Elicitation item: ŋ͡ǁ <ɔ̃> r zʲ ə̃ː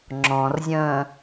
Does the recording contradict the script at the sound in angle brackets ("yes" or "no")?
no